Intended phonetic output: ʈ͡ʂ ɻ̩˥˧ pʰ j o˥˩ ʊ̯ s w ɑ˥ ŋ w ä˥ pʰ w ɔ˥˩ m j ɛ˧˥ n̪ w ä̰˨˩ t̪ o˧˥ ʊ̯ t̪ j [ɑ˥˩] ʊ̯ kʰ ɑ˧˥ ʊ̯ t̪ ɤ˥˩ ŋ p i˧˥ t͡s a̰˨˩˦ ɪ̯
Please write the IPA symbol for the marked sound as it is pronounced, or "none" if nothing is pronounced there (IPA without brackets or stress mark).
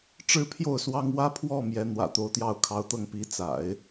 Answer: ɑ˥˩